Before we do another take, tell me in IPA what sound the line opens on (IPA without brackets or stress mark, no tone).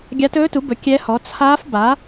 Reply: ɡʲ